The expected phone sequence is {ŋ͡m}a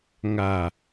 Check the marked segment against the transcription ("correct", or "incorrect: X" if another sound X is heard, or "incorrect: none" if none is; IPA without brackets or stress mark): incorrect: ŋ